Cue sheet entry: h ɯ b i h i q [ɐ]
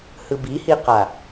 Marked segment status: incorrect: a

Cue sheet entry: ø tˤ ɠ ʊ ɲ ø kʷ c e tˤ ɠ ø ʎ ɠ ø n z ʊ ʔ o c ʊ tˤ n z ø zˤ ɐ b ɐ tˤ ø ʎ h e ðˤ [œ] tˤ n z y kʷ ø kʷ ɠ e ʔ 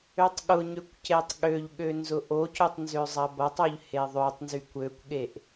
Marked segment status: incorrect: ø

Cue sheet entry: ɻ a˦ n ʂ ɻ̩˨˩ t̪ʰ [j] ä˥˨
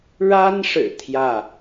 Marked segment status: correct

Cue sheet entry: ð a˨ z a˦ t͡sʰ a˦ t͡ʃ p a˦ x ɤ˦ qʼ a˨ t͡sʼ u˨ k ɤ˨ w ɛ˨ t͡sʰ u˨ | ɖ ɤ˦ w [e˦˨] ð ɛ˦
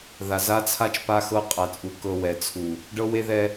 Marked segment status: incorrect: e˦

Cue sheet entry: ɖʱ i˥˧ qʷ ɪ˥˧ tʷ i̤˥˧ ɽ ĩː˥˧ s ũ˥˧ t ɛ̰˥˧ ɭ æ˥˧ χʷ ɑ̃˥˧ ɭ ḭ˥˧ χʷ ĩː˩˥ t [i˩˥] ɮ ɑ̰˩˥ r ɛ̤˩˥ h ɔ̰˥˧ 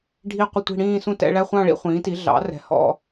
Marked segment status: correct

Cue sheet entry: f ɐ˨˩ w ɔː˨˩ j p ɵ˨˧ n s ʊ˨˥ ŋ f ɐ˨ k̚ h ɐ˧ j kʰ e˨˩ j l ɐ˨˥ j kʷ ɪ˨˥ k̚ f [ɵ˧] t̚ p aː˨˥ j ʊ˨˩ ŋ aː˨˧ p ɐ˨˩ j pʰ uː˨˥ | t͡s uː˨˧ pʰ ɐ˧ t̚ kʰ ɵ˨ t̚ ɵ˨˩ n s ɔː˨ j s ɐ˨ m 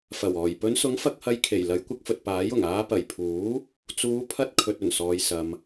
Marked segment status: incorrect: ɵ˨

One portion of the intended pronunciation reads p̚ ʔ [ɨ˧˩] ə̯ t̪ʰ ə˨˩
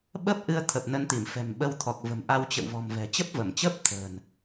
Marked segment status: incorrect: ɨ˧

